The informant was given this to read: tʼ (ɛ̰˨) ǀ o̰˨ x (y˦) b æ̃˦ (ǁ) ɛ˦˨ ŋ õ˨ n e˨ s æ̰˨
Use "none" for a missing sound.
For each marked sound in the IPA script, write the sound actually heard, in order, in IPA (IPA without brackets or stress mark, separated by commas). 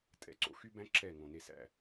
ɛ̰˨, y˦, ǁ